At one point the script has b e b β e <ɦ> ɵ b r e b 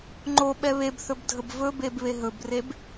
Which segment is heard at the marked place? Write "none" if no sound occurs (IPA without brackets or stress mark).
ɦ